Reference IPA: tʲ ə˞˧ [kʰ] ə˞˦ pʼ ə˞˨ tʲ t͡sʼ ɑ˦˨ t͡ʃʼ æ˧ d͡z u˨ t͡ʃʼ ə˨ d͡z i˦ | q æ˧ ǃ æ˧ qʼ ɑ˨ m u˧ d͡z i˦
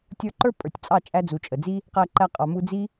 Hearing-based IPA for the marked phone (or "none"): ǃ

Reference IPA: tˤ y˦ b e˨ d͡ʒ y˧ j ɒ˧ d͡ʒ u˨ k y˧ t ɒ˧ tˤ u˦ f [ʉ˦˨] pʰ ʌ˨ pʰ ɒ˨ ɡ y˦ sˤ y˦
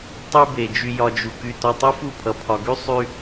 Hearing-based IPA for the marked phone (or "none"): u˦˨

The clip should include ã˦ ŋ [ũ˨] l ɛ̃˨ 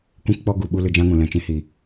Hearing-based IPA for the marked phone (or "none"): ũ˨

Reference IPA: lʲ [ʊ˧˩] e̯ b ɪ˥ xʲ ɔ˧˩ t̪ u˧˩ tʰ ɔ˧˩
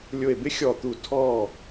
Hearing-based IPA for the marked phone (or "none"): ʊ˧˩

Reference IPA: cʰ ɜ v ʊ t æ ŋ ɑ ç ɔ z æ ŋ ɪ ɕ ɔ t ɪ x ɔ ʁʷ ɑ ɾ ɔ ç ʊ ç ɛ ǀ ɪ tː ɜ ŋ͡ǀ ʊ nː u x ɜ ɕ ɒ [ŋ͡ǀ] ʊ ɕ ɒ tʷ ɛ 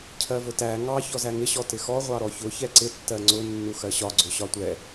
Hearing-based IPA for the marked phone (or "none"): ɡ͡ǀ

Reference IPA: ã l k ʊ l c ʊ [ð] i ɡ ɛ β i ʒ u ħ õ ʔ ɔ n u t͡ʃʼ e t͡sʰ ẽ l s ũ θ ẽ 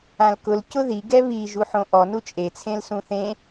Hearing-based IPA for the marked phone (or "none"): ð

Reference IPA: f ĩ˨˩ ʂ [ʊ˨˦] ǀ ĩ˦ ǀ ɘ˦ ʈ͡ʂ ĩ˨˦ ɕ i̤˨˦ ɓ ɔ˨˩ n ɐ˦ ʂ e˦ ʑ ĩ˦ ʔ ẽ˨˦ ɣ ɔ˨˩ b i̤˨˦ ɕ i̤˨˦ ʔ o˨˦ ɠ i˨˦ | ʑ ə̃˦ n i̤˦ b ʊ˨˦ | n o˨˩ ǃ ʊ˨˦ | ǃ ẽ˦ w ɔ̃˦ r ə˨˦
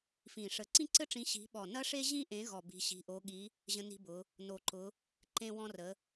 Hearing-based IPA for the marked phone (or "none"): ə˨˦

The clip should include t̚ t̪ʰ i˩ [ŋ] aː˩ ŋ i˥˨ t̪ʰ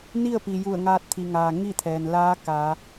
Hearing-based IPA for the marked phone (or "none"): ŋ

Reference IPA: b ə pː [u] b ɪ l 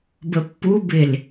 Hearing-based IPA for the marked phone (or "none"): u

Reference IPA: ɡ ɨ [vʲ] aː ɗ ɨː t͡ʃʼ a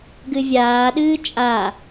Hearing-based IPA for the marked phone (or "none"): vʲ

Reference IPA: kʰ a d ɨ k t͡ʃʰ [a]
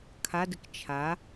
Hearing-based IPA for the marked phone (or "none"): a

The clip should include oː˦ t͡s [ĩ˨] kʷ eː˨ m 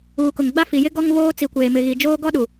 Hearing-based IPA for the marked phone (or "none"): i˨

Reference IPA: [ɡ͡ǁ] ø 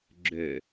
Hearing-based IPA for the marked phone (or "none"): ɡ͡ǁ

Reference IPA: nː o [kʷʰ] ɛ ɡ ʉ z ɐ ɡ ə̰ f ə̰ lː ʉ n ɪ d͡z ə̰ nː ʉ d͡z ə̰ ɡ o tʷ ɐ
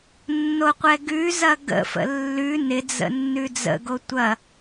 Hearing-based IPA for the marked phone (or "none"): qʷ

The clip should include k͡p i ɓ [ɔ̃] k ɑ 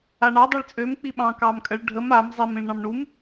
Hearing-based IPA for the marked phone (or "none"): ɑ̃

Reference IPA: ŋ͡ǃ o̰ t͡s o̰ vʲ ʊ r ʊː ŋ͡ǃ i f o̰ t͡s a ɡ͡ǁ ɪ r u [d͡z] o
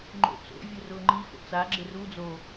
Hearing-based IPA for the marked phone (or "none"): d͡z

